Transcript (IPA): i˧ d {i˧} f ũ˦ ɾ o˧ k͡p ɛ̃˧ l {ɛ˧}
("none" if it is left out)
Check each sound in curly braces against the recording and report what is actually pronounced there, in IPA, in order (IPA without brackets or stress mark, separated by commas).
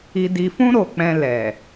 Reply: i˧, ɛ˨